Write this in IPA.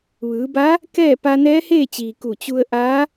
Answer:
ʋ ɯː˩˧ b a˧˥ | k ɛː˥˨ p a˧ n ɛː˧˥ h eː˥˨ t͡ɕ iː˩ k u˧˩ t͡ɕ u˧ ə̯ ʔ aː˧˥

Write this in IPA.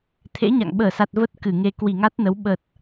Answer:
t̪ʰ ḛ˧˥ ɲ a̰˧˨ ŋ ɓ əː˧˩ s a˨˩ t̚ v ə˦˥ t̚ k ɨ˧˩ ŋ e˧ k w i˧˩ ŋ a˦˥ t̚ n ə˨˦ w ɓ ə˨˩ t̚

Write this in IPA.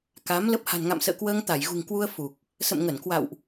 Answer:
k a˨˦ m l ə˦˥ p̚ h a̤˨˩ n ŋ a̰˧˨ m s ə̰ː˧˨ k w əː˧ ŋ t̪ a˧˩ j ɣ ṳ˨˩ ŋ k w u˧ ə̯ f u˨˩ k̚ | s ə̰˧˨ m ŋ ə˧˩ n k w a̰˧˨ w ʔ

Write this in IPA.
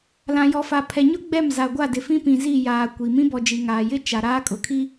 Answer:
l ã˨ j ɔ˨ f a˨ pʰ ɛ˨ ɲ ʊ˦ ɡ͡b ɛ˦˨ m z a˨ ɡʷ a˦˨ d ɪ˨ f ĩ˦ p ĩ˨ z i˦˨ j aː˨ kʷ i˨ m ĩ˦ b ɔ˨ d͡ʒ i˨ ŋ aː˨ j ɪ˦ t͡ʃ a˨ ɾ aː˦ kʼ ʊ˨ kʰ i˦

